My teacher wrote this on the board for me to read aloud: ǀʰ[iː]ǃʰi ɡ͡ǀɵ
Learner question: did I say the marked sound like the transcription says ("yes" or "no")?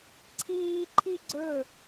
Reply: yes